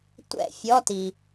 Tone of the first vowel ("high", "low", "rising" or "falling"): falling